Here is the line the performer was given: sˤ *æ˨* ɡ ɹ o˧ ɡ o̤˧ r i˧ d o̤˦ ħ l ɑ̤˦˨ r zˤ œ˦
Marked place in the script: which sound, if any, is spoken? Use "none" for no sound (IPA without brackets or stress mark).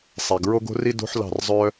æ˨